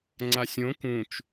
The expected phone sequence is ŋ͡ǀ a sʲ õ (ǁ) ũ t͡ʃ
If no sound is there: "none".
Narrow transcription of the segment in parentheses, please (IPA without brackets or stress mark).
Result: k